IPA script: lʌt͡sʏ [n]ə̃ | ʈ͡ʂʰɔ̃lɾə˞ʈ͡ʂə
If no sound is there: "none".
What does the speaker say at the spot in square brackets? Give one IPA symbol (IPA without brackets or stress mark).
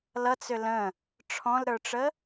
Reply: l